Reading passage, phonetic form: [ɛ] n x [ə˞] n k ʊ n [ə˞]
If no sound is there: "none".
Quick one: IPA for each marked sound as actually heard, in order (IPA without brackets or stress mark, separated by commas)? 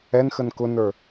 ɛ, ə, ə˞